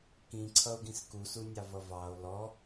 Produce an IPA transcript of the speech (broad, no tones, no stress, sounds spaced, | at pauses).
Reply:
k ĩ ǀʰ ʌ o̯ ɡ ĩ s k u s u nʲ ɑ v ʌ v ɑ o̯ l ɔ